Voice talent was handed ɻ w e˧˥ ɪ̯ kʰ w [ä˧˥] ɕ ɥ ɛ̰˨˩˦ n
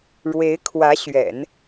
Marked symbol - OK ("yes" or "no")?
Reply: yes